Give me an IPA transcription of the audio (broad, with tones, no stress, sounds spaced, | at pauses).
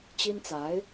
t͡ɕ i˥ n t͡s a˧˥ ɪ̯